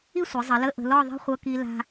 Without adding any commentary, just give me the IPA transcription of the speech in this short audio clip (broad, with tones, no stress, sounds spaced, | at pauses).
i˥˧ sʷ i˩˧ zˤ ə˩˧ l ə˧˥˧ ʔ ə̤˧ l ɔ˥˧ ðˤ i̤˥˧ χʷ ɤ˧ k i˧ l a̤˧